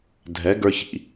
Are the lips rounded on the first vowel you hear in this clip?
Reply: no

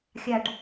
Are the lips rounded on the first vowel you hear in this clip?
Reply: no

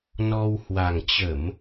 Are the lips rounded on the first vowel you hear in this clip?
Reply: yes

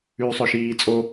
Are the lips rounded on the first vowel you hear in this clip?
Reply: yes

